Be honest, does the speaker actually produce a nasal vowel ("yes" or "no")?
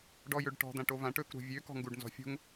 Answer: yes